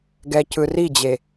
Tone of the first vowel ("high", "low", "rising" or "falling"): low